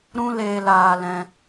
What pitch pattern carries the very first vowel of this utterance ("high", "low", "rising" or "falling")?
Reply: high